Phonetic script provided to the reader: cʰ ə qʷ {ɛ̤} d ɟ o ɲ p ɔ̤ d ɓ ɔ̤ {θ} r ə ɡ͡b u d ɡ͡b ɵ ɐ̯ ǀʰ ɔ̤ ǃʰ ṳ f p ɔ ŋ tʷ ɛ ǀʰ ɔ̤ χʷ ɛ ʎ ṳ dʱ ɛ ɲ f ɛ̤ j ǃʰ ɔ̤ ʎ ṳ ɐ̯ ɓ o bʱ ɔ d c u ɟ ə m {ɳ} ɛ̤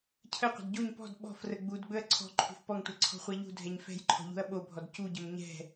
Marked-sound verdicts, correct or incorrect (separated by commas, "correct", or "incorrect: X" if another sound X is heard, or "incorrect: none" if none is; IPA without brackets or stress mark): incorrect: ə̤, incorrect: f, incorrect: ɲ